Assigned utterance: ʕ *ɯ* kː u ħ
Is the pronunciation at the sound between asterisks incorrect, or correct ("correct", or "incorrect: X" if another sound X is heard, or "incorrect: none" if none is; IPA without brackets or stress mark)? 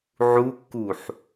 incorrect: u